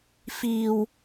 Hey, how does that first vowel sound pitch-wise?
low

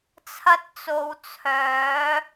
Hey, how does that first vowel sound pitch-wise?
high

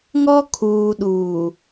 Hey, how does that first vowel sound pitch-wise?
high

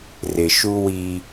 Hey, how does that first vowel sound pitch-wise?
low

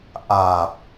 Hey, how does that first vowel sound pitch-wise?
low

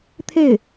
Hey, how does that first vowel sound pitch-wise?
falling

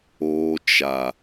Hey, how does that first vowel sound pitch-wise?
high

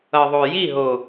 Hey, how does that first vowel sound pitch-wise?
low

